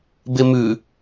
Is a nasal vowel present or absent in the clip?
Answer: absent